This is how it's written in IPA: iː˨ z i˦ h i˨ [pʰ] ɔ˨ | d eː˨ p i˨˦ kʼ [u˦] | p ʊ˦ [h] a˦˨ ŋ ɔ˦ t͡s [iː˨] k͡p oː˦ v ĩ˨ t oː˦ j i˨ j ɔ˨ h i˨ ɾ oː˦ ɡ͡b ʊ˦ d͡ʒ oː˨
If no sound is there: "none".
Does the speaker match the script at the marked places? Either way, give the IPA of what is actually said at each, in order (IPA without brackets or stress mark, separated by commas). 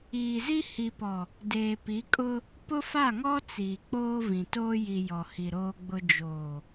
p, ʊ˦, f, iː˨